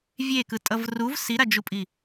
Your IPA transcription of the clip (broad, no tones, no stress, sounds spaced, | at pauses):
vʲ e k ɯ tʼ ʌ v r u v s i ɾ a d͡ʒ u pʼ i